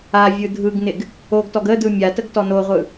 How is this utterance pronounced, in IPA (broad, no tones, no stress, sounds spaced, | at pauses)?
a vʲ ɯ dʱ ɯ ɡ n ɪ ɡ | o ɡ t ɔ ɡ ə d ɯ mʲ a t ə ɡ t ɔ n o ʁʷ ɯ